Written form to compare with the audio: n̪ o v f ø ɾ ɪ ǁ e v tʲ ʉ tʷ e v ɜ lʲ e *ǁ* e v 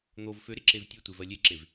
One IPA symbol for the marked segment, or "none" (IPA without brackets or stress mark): ǁ